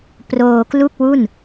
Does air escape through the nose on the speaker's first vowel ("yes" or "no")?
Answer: no